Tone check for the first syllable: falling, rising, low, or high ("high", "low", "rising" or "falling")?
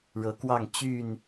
rising